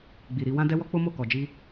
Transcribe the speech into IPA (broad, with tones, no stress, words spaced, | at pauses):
ɡ͡bi˨ɾi˧ wã˦dɛ˦wɔ˦ k͡po˦mo˦˨ kɔ˨d͡ʒi˧